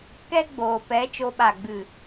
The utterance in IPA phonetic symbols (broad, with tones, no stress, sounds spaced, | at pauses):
k ɛ˦ ɡ͡b oː˨ p ɛ˨˦ t͡ʃ o˧ ɓ a˦˨ ɡ͡b ɨ˦˨